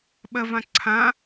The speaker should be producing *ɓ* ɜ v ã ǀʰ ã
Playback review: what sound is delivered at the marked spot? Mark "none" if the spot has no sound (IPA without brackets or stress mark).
ɓ